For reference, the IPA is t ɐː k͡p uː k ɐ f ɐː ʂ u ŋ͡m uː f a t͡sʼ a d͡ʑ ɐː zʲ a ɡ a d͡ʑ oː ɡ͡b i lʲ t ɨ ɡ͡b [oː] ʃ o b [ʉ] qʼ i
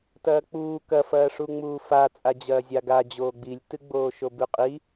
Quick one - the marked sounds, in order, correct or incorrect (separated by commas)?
correct, correct